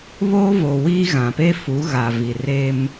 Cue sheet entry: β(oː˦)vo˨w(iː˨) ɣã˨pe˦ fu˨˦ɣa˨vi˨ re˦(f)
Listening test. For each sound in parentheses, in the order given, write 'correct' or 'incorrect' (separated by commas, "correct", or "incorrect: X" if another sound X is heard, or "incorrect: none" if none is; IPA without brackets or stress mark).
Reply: correct, incorrect: iː˦, incorrect: m